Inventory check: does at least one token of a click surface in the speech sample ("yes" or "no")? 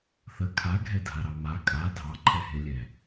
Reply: yes